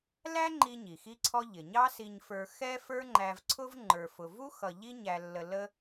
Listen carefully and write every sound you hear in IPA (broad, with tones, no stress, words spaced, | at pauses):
læ˥ŋ͡ǃi˧ ɲi˩xi˥ǀʰɔ˥ ʎɪ˩ɲɑ˥si˧ɲfə˞˧ xɛ˥ fə˞˥ŋ͡ǃæ˧vǀʰʊ˥v ŋ͡ǃə˞˧fʊ˧ vu˥ xʌ˧ ʎi˥ɲæ˧lːə˧ lə˥